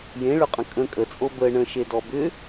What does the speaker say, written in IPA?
j ẽ ɭ ʏ qʼ ə̃ kʼ ə̃ kʼ ə t͡sʼ o b ə ɳ ə̃ ʃ e d ɔ b ʏ

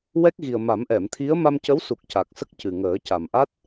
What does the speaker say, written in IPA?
w ɛ˦˥ k̚ ɣ i˨˩ ə̯ m a˨˩˦ m ʔ ɛ˨˩˨ m t̪ʰ i˧˥ ə̯ m a˧ m c ə˧˥ w s u˨˩ k̚ c a˨˩ k̚ s ə˦˥ k̚ c ɨ˨˩ ŋ əː˨˩˦ c a˨˩ m ʔ a˦˥ t̚

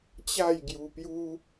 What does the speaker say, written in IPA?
t͡ɕ a˥˧ j ɡ j u˧ p j u˦

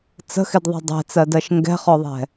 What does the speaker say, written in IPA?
t͡s ə̤ x ɪ d ðˤ ɛ̤ dˤ ɛ̤ t͡s ɜ d ɜ ʃ ŋ ɡ ɛ̤ χ ɔ ðˤ ɛ̤

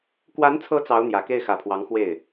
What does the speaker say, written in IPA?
k w a˧˥ n t͡sʰ ɤ˧˥ t͡s ɑ˧˥ ʊ̯ n̪ j ä˨˩ k e˥˩ ɪ̯ x ä˨˩ pʰ w ɑ˧˥ ŋ x w e˥˩ ɪ̯

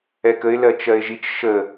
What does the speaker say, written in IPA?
ɛ k ə ɪ̯ l ɜ t͡ʃ ɜ ɪ̯ ʒ i t͡ʃ ʃ ə

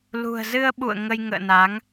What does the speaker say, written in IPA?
l ṳ˨˩ ə̯ z ɨ˧ ə̯ ɓ ṵ˧˨ ə̯ ŋ ə˧ j ŋ ə̰ː˧˨ n a˨˦ ŋ

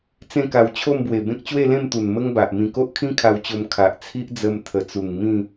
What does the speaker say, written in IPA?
t͡s ẽ˥˧ k a˧ w t͡ɕʰ o˥˧ m b w e˨˩ b ẽ˦ k̚ t͡ɕ w e˥˧ l ẽ˥˧ m t̪ u˨˩ n m ə˦ ŋ b a˨ ʔ m ĩ˧ k o˦ ʔ kʰ ĩ˦ kʰ a˧ w t͡ɕ o˧ m kʰ a˨ ʔ t͡sʰ i˦ ʔ d͡z ə˧ m t̪ʰ ə˨˩ t͡s u˨˩ ŋ m ĩ˥˧

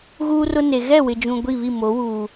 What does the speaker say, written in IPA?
ɣ uː˦ r ʊ˦ n e˨ ɣ ɛ˦˨ w ɪ˨ d͡ʒ ũ˨ ɡʷ i˦˨ β i˦˨ m o˨˦ w uː˨

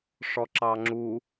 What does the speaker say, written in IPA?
ʂ ɔ ǁ ɑ ŋ͡ǁ u

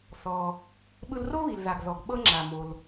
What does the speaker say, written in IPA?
θ ɔ˩ | ɓ ɯ˧ l r o˥ β i˩ l ð a˩ ɡ ð ɔ˩ ɡ ɓ ɤ˧ ŋ͡ǁ a˩ m o˩ l

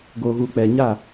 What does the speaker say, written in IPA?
ɡ o˨ ɣ u˨ k͡p ɛ˨ ɲ a˦˨

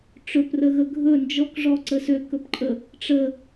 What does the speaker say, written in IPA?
ʈ͡ʂ ɵ p r ə ɣ ə ɡʱ ɵ n d͡ʒ ɔ k ʐ ɔ ǀ ə s ø k ɵ p ǃʼ ə | ʈ͡ʂ ə

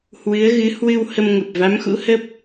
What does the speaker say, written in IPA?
h w ɨ˨˦ ə̯ ɣ ɨ˨˦ h w ɨ˧ w h ə˧ m ŋ ə˨˩ p̚ v a˨˦ m x ṵ˧˥ h ə˦˥ p̚

